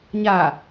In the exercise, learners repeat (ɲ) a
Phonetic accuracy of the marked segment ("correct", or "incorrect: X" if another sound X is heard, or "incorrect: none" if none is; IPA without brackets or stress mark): correct